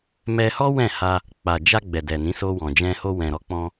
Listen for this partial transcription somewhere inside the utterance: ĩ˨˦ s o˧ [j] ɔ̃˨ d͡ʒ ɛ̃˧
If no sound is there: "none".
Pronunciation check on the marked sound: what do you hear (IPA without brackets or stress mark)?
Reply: w